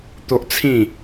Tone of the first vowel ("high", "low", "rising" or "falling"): high